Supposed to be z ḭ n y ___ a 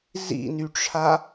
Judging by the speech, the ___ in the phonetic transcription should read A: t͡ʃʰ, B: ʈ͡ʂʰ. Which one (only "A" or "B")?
B